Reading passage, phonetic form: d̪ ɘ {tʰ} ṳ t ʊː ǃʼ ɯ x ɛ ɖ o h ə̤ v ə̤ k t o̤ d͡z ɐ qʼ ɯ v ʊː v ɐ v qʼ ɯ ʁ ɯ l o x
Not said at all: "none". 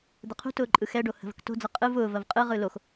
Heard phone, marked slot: qʰ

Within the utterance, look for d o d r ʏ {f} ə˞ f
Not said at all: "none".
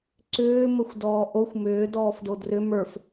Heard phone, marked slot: m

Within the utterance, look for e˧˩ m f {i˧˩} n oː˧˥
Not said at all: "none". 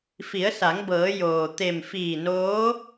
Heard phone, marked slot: iː˧˩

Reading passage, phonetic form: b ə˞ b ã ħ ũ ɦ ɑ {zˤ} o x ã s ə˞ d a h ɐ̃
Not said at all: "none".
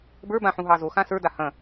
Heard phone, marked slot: z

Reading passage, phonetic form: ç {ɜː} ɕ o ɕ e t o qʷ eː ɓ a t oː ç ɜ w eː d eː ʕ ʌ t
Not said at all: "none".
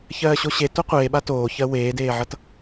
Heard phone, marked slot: ɜː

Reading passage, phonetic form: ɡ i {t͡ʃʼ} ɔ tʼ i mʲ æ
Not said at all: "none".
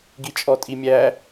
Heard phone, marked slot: t͡ʃʼ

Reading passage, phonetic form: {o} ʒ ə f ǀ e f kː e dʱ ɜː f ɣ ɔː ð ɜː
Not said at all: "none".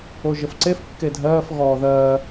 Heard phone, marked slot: o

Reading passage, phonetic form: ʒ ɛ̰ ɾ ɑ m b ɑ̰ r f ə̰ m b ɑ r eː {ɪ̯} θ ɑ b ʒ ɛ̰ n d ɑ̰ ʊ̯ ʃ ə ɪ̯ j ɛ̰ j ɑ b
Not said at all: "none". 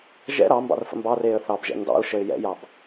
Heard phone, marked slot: ə̯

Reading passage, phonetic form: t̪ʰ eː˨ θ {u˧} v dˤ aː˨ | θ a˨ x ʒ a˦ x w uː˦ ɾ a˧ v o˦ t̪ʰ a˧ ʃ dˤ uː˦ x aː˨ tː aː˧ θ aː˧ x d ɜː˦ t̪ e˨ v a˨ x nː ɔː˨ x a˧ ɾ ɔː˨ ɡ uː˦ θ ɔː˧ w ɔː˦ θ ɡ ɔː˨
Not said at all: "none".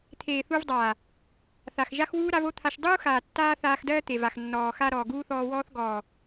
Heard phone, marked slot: u˧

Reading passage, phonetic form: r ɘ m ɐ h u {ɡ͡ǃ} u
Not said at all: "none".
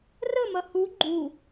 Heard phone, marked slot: ɡ͡ǃ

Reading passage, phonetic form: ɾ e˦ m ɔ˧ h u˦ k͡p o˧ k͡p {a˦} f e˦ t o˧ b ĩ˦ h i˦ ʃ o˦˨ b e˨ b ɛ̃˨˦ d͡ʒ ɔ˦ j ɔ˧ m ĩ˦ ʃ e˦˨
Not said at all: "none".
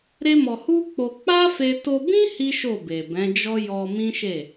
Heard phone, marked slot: a˦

